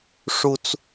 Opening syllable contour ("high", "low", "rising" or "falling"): high